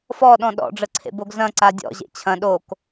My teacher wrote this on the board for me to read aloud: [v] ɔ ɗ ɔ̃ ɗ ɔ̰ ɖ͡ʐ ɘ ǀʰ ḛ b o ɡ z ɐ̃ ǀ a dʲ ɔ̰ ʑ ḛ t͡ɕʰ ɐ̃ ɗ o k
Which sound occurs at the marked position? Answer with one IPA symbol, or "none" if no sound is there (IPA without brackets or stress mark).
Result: f